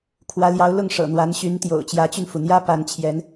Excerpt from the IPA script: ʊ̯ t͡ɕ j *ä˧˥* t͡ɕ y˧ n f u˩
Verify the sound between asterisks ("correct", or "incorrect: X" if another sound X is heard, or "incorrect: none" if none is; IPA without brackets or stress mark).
correct